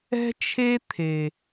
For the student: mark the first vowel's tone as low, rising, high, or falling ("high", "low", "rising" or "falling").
high